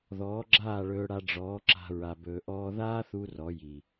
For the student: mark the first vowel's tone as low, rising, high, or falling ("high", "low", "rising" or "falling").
rising